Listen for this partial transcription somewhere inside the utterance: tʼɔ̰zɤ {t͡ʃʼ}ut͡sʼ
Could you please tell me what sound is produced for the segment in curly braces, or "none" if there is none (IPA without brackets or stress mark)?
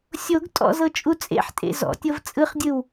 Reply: t͡ʃʼ